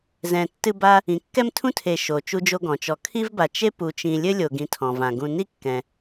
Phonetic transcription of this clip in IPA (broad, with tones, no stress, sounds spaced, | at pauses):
z ɛ̃˨ tː ɨ˦ b a˦ | ĩ˩ kː ɛ˦ m tʰ ũ˦ tʰ e˨ ʃ o˩ t͡ʃ u˦ d͡ʒ o˦ ɡ ɔ̃˩ t͡ʃ ɔ˨ kʰ i˥ v b a˨ t͡ʃ e˥ p u˨ t͡ʃ ĩ˨ lʲ ɘ˥ lʲ o˨ ɡ ĩ˨ tʰ ɔ̃˩ v ã˩ ɡ ũ˨ n i˥ kː ɛ̃˩